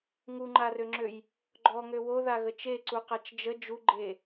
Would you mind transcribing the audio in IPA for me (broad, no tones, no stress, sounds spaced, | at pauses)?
ŋ u ŋ͡ǃ a r ø ŋ͡ǁ ø j | ɡ͡ǃ ɔ ŋ ø w o ð a ɣ ə t͡ʃ e ǀ u q a t͡ʃ d͡ʒ ə d͡ʒ u ɡ͡ǃ e